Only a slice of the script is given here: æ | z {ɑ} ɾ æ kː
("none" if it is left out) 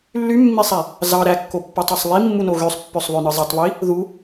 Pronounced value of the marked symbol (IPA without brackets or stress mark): ɑ